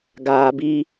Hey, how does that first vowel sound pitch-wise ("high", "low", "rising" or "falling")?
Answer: low